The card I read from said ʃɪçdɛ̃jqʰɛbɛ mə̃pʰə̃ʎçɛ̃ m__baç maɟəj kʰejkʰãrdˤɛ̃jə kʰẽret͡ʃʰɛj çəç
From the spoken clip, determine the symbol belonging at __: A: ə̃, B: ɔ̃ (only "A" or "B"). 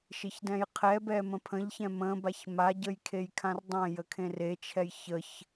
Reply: A